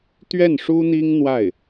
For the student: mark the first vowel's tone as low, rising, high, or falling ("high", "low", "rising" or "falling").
falling